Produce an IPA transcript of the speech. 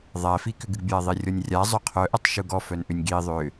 ðˤ æ f i k ʏ ɡ ɨ ɡ bʲ æ ðˤ i rʲ ɔ nʲ rʲ a zˤ œ qʰ œ ʔ œ tˤ ʃ u ɡ ɔ f œ n ʔ ʏ nʲ ɡ i ðˤ ʏ

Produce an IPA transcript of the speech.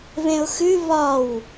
β ẽ ʊ̯ x ʉ β ɒ w

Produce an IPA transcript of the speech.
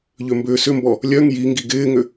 ʎ ʏ m b ʏː s ʏ m b ɔ | lʲ œ ŋ j i ŋ ɡ i ɡ ɪː ŋ ʏ

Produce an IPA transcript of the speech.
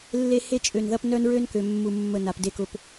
lː e˦ h e˦ t͡ʃʼ ø˨ n ð ɐ˦ p n œ˦ n ɹ ø˦ n k ø˨ mː u˨ mː ə˨ n a˨ p d e˦ k ʊ˨ p

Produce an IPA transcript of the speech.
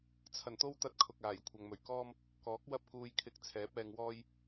t͡sʰ ɐ˨˩ n t̪ o˥ w t̪ ɐ˧ t̚ kʰ ʊ˨ k̚ aː˨˩ j kʷʰ ɐ˨ ŋ m ɵ˨˩ ɥ k ɔː˥ m | k ɔː˨˥ k̚ w ɐ˥ p̚ k uː˧ j kʰ ɪ˧ k̚ t͡sʰ ɛː˨˥ p̚ ɛː˧ ŋ w ɔː˥ j

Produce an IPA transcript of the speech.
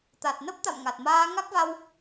t̪ a˨˩ t̚ n ə˦˥ p̚ t̪ a̰˧˨ m ŋ a˨˩ t̚ m aː˧ ŋ a˦˥ k̚ v a˧ w

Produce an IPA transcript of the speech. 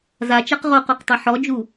z a t͡ʃ a q ʁ o q o q tˤ ɐ ħ ɔ d͡ʒ u

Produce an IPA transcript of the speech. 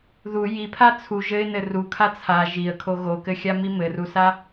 ð u j i pʰ a t͡sʰ u ʒ ɘ ɪ̯ n ɘ r u kʰ a t͡sʰ a ʒ i ə̯ kʰ o ɣ o k ɘ xʲ a m i m ɘ r u s a

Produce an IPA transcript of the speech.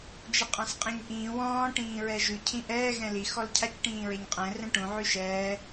d͡ʒ ɪ qʼ ã s qʼ ẽ ɲ ʔ ĩː w ɔ̃ː ʈ ĩː ɹ ɛ ʒ ʉ cʰ ĩ ʔ ɛː ɣ ɛ̃ l i x ɔ l cʰ a c ʈ ĩː ɹ e ɲ qʼ ɛ̃ r ɛ̃ ʈ ũ ʕ ʉ ʃ ɛː

